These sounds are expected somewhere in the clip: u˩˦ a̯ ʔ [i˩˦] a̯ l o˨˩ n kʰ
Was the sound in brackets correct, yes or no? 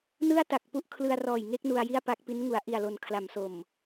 no